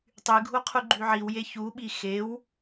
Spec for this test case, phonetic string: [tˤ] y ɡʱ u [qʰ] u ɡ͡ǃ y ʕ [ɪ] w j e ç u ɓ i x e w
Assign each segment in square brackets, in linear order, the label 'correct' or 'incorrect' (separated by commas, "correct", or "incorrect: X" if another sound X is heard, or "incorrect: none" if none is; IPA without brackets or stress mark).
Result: correct, correct, incorrect: i